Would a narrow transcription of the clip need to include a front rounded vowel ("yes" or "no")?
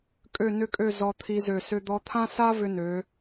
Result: yes